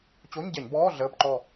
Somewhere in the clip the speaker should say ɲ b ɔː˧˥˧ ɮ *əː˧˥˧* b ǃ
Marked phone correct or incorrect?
correct